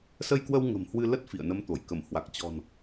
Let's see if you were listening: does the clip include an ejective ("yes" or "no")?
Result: no